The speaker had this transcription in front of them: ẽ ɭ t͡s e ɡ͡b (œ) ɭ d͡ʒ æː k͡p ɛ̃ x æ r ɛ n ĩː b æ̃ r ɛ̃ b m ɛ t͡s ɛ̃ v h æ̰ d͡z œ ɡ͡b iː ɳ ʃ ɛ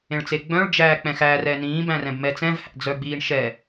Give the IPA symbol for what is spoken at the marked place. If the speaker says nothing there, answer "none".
œ̃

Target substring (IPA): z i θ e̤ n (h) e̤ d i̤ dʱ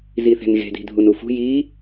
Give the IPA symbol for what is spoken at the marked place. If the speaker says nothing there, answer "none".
ɣ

